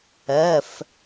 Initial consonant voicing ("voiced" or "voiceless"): voiceless